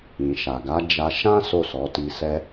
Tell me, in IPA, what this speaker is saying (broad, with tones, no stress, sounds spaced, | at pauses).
ĩ˨ ʃ a˨ ɡ a˨˦ d͡ʒ a˧ ʃ ã˦ s o˦˨ s ɔ˨˦ t i˧ s ɛ˧